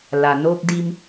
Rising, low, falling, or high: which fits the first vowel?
low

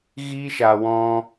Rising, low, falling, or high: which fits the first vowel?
high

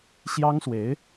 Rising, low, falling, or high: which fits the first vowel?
high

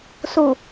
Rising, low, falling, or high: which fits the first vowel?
low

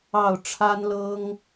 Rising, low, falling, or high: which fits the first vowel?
falling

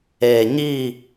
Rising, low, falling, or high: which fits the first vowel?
low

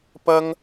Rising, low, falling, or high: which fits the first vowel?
high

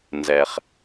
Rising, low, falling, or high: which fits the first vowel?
low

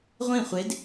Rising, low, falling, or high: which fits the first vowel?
falling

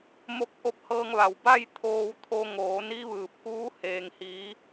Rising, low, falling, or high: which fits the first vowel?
rising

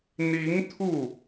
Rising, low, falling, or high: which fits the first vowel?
rising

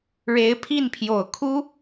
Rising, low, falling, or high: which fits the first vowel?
rising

